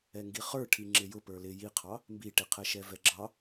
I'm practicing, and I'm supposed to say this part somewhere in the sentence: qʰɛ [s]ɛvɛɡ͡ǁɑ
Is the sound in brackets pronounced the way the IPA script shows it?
no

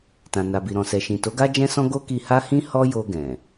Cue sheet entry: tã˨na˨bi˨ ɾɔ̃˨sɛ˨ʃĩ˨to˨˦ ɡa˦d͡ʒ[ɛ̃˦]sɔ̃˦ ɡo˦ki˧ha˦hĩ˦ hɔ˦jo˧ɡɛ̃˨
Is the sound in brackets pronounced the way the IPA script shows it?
yes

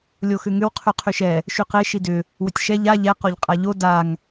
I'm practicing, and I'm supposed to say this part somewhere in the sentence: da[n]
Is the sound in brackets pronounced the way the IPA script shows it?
no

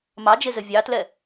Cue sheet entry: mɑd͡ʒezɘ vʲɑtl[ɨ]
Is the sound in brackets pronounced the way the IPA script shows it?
no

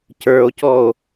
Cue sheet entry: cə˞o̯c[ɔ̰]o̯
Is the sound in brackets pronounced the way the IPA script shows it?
no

